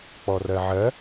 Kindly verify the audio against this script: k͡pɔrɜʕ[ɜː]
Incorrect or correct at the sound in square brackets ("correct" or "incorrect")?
incorrect